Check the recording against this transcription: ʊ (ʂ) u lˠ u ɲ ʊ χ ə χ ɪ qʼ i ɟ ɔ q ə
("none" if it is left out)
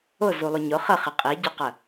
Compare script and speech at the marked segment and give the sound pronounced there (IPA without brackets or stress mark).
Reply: z